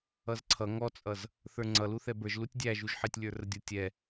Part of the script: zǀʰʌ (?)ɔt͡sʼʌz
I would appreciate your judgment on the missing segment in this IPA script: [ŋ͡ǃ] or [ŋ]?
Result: ŋ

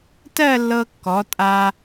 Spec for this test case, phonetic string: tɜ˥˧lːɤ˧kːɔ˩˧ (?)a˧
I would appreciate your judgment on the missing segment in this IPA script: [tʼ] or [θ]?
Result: tʼ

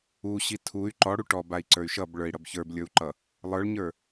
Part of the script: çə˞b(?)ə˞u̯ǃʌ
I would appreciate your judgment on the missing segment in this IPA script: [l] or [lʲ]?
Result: lʲ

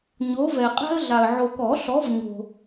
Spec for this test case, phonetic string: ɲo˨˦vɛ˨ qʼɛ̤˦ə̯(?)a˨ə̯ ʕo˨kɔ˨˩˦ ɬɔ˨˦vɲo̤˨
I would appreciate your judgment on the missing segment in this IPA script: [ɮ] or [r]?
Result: ɮ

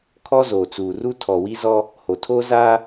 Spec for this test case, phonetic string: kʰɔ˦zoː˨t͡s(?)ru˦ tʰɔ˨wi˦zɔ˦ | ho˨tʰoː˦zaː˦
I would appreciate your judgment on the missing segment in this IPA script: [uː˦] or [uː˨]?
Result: uː˨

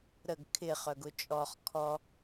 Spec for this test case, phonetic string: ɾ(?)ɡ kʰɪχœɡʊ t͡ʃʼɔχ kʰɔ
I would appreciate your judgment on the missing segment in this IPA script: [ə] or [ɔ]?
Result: ə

